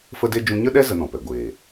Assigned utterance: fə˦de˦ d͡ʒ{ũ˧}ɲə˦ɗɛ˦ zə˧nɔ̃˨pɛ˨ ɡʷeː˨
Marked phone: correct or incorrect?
correct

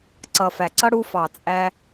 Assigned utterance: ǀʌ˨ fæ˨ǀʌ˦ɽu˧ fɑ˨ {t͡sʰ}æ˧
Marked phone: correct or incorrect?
incorrect: t͡sʼ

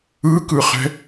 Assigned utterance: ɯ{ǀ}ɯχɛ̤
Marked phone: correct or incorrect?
incorrect: k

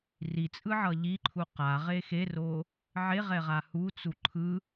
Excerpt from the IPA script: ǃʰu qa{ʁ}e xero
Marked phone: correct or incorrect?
correct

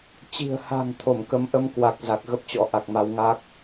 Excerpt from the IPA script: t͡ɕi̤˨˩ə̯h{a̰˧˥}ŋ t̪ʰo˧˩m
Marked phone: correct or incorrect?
incorrect: a̤˨˩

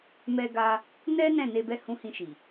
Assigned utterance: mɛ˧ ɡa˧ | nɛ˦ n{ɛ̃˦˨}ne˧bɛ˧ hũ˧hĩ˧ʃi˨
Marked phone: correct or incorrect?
correct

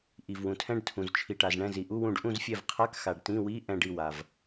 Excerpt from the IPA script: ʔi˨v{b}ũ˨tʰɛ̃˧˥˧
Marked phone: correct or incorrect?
incorrect: w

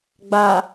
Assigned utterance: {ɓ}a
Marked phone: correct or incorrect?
incorrect: ɡ͡b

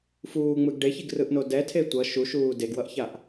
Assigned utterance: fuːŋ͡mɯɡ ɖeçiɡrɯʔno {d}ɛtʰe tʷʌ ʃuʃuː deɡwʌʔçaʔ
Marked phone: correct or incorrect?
correct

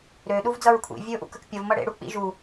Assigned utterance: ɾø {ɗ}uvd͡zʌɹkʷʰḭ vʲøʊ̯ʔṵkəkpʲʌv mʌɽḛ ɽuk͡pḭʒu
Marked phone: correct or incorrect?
correct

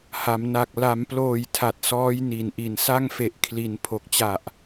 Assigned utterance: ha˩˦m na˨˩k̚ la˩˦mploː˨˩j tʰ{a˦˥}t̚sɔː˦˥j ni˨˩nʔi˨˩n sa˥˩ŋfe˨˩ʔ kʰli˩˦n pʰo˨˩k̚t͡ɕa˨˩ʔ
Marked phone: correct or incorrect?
incorrect: a˨˩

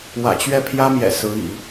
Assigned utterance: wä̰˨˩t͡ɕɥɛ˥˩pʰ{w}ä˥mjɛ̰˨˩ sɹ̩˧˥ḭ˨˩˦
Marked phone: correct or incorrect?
incorrect: j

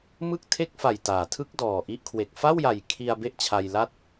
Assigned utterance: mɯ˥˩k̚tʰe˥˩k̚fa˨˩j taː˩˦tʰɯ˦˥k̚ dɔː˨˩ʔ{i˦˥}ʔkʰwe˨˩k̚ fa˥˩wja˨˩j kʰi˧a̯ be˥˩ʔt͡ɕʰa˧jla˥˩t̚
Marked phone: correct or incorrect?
correct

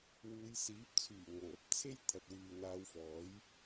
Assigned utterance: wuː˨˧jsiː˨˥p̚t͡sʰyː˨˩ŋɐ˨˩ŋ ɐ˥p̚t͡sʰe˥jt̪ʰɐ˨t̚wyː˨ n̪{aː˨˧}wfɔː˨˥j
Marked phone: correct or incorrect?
correct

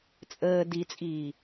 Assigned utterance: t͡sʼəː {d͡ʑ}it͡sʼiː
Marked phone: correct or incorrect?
incorrect: d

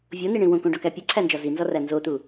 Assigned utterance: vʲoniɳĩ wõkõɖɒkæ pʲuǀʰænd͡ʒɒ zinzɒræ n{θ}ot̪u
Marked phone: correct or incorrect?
incorrect: z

